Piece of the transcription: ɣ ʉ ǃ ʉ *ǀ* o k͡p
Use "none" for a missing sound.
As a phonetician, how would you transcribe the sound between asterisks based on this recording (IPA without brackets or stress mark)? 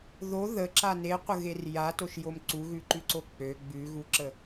ǀ